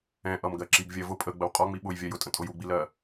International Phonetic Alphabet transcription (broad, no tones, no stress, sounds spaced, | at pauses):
ɛ̃ ʔ ʌ m ɡ ɜ ǁ i ɡ vʲ ɜ v ʊ pʼ ə ɡ͡b ə w qʼ ɒ ŋ͡m i ɓ ʊ j vʲ ɜ j ʊ tʼ ə̃ tʼ ʊ j u ɡ͡b i l ɜ